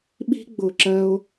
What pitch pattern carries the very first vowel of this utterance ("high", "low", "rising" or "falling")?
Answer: high